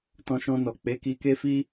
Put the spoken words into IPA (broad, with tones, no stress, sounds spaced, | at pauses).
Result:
t ɔ̃˧ ʃ ɔ̃˧ n ɔ˨ k͡p e˨˦ k i˧ k e˦ f i˦